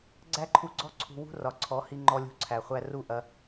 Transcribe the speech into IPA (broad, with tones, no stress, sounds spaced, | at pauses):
ɡ͡ǀ æ˦ ǃʰ u˧ ɡ͡ǀ ɔ˦ ǀʰ ṳ˧ w ṳ˦ r ɒ˨ ǀʰ ɔ˨˦ h i˧ ŋ͡ǃ ɔ˦ lʲ ṳ˦˨ ǀʰ æ˨ χʷ æ˦ r u˦ ʔ ɐ˧